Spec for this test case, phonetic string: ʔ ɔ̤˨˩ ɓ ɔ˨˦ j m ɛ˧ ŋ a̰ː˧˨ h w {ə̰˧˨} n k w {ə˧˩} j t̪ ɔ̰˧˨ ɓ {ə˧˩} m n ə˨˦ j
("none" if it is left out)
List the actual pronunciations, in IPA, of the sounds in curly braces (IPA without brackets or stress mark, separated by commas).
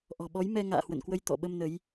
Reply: ə̰˧˨, ə˧, ə˧